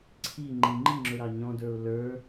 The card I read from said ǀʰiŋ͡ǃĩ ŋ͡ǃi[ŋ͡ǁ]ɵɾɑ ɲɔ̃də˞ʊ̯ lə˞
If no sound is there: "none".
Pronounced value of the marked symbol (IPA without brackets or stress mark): ŋ͡ǁ